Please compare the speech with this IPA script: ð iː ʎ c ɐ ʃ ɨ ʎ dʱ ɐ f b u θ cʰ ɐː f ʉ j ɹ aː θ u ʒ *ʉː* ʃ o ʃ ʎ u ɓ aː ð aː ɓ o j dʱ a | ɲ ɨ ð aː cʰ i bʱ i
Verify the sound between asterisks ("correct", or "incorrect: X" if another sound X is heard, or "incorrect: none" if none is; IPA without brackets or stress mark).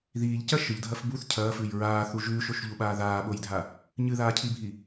correct